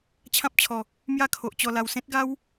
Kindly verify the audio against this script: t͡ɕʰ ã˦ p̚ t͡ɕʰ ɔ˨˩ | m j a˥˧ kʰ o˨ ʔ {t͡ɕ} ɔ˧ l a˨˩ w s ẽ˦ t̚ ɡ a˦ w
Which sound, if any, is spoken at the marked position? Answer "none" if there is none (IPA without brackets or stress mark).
t͡ɕ